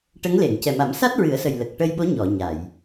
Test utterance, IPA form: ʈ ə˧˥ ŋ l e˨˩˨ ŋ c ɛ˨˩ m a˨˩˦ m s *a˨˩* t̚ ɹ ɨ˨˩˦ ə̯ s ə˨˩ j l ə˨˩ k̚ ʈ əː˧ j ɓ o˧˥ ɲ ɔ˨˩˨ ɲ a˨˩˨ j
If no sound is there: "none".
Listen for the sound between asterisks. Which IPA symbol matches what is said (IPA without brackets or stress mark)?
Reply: a˦˥